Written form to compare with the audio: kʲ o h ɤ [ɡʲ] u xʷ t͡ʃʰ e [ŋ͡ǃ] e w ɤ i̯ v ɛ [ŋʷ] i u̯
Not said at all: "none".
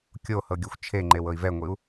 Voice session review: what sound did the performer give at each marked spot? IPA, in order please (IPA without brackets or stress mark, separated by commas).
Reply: ɡʲ, ŋ͡ǃ, ŋʷ